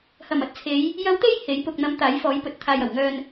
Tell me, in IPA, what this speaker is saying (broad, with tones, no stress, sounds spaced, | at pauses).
h ɐ˨˩ m ɐ˨˥ t̚ t͡sʰ e˨˧ j | j ɐ˨˧ w t̪ e˧ j h e˨˥ j p ʊ˨ k̚ n̪ ɐ˨˧ m t̪ aː˨˥ j f ɔː˨˥ j p ɵ˨ t̚ t̪ʰ aː˨ j ɐ˨˩ w ŋ œː˧ n